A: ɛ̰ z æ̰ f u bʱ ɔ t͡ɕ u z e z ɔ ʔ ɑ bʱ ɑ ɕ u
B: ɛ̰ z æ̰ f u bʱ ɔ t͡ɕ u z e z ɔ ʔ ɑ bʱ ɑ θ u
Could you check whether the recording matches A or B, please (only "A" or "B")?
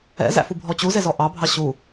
A